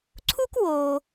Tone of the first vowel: high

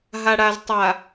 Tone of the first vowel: low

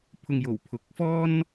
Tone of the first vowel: low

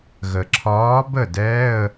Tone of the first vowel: low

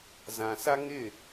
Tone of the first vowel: low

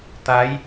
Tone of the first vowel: rising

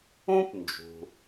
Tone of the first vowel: high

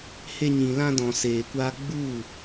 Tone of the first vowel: high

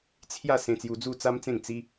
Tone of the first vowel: falling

